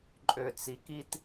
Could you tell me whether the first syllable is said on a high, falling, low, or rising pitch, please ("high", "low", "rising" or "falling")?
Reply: low